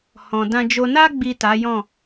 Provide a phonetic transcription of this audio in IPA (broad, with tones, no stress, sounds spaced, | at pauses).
h ɔ̃˨ d ã˧ d͡ʒ o˧ n a˧ ɡ͡b i˨ t a˨˦ j ɔ̃˦˨